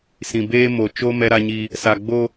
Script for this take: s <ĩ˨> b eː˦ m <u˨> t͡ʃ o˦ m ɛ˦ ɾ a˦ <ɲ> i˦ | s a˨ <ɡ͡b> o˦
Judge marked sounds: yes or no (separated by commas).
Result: yes, no, yes, yes